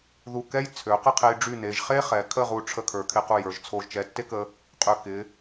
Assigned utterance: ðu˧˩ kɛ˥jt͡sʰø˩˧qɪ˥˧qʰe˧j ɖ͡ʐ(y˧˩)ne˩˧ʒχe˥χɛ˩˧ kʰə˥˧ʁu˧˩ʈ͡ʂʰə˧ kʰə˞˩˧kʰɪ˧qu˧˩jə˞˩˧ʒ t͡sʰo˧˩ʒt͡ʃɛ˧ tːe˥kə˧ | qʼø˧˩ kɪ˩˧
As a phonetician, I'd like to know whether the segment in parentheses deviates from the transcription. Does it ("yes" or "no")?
no